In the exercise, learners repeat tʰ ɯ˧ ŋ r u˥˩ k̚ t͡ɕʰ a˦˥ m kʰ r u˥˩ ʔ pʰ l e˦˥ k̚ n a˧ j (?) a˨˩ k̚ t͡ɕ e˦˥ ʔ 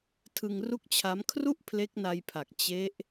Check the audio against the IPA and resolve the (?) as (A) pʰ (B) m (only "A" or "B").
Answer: A